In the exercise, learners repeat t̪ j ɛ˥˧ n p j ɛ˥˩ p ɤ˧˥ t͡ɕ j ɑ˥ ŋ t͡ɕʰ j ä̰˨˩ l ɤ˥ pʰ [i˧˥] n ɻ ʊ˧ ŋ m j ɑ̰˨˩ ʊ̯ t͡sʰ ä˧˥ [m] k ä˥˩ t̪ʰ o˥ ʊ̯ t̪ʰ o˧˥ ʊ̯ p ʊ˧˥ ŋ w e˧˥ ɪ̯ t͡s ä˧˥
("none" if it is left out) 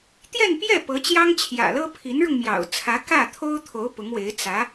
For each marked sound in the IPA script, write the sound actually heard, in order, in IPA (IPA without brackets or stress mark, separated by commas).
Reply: i˧˥, none